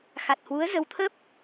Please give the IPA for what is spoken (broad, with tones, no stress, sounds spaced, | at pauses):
x a˨˩ t̚ h w u˨˦ ə̯ z ə˨˦ w t̪ʰ ə˦˥ p̚